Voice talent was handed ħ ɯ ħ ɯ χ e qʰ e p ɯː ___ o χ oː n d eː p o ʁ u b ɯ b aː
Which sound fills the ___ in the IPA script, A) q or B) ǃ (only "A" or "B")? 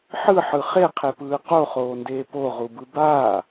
A